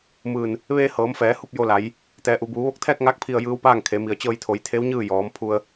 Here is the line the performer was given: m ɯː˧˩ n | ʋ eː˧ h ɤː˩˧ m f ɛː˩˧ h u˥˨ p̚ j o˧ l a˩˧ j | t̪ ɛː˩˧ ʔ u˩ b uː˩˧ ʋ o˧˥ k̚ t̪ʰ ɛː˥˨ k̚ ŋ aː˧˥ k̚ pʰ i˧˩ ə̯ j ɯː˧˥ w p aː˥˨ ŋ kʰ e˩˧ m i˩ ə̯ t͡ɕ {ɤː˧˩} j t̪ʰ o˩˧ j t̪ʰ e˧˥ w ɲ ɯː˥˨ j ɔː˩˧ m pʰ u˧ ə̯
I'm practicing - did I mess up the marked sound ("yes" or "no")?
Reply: yes